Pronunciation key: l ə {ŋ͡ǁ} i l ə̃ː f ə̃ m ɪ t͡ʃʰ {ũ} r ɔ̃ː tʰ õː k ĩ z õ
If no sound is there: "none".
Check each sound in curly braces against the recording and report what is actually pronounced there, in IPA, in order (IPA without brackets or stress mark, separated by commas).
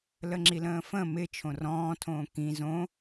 ŋ͡ǁ, õ